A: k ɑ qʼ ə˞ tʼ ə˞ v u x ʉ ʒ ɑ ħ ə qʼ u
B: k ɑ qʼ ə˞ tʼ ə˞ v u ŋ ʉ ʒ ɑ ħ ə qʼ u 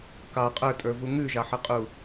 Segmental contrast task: B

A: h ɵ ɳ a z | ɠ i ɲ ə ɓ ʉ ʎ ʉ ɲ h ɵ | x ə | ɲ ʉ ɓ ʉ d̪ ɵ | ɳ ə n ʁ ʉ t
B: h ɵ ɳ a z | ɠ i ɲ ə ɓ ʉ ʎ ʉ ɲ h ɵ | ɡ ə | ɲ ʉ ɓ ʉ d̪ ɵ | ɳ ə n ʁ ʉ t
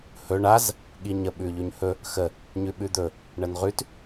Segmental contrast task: A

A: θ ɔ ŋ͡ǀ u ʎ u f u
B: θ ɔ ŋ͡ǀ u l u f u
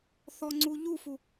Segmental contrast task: A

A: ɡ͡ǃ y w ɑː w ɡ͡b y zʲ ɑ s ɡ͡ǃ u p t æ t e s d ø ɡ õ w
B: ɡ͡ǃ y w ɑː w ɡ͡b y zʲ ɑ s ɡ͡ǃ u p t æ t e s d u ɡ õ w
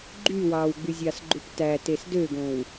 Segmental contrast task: A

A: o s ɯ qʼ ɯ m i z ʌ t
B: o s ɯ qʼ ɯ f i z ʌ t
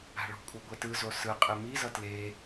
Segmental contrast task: A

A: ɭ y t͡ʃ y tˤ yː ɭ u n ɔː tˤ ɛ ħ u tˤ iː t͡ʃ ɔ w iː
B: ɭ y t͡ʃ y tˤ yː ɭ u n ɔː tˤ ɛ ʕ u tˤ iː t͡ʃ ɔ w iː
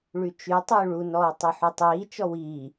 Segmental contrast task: A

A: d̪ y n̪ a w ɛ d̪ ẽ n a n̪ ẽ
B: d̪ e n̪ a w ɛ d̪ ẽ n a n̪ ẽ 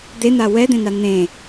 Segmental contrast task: B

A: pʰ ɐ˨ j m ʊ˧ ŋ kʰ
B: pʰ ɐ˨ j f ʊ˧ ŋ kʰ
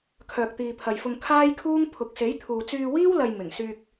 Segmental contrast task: B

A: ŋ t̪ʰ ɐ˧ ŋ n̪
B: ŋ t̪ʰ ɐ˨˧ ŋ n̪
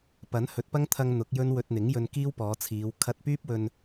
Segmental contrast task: A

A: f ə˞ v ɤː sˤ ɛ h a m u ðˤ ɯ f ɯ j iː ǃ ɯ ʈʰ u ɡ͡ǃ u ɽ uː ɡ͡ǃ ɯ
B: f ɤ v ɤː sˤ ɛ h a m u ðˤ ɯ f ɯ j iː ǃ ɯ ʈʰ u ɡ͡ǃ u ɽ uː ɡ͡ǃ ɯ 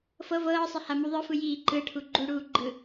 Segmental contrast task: B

